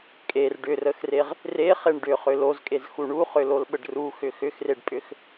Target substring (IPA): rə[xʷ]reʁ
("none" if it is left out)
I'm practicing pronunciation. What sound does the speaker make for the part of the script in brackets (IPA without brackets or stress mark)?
x